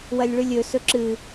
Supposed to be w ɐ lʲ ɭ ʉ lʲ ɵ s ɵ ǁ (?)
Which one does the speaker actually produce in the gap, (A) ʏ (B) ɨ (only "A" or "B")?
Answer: B